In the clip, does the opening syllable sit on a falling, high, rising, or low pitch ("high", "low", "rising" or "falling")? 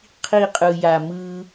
falling